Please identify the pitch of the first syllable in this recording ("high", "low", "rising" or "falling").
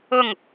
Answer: falling